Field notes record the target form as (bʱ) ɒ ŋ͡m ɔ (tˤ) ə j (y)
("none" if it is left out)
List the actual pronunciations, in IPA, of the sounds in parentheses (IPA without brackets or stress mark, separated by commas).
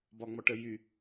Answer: b, ʈ, y